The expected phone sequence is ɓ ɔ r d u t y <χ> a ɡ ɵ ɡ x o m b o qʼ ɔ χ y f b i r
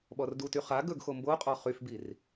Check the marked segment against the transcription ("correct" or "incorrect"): correct